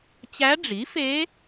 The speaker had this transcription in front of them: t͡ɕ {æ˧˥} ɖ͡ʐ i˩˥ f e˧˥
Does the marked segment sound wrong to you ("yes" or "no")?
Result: no